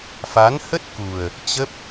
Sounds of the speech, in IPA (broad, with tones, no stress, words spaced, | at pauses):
fa˨˦nhə˦˥t̚ku˨˩ə̯ | t͡ɕə˦˥p̚